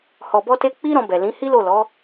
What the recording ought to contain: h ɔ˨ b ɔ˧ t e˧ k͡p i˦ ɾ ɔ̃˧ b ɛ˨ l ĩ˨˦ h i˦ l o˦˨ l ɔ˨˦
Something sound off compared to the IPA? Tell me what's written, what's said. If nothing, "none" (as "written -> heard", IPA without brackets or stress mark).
none